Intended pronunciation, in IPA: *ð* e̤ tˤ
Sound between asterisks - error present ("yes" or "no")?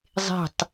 yes